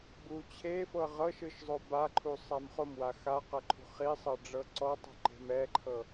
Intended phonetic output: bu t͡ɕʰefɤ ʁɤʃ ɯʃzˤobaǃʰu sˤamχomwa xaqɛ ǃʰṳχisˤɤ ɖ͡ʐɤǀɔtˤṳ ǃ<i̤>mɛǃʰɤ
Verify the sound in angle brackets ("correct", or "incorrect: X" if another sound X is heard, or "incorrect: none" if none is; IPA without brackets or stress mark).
incorrect: e̤